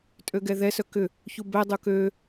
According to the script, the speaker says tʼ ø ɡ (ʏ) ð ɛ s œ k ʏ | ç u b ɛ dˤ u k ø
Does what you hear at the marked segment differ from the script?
yes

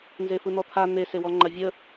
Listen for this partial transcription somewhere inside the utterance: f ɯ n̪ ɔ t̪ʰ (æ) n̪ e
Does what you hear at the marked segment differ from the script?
yes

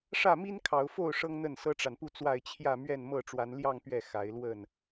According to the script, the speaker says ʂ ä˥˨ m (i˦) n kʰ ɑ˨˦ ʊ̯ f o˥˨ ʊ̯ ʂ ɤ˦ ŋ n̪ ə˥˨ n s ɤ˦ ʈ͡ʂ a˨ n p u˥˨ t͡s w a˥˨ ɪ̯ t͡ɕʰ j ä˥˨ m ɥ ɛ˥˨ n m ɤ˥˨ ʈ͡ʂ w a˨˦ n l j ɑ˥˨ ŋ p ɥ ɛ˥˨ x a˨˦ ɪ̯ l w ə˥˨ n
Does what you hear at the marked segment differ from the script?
no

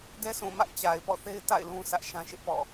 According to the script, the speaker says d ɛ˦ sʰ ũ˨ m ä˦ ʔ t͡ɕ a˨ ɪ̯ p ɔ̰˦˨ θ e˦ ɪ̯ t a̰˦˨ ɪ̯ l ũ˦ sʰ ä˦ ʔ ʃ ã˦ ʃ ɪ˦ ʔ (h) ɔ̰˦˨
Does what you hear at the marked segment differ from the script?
yes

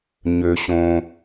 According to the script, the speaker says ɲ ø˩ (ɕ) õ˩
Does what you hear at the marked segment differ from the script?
no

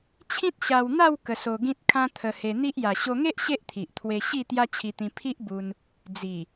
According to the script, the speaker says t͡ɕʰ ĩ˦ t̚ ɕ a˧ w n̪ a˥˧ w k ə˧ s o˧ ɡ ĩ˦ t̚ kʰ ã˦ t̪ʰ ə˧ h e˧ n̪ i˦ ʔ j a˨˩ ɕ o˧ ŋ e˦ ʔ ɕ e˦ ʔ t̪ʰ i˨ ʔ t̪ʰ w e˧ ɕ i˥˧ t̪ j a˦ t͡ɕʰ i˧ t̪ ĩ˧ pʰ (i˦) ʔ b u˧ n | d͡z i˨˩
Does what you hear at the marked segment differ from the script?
no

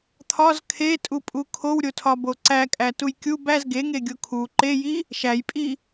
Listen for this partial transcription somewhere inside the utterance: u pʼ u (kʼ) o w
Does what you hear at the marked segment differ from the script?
yes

